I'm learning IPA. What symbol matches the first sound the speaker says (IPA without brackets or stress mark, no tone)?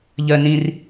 ʎ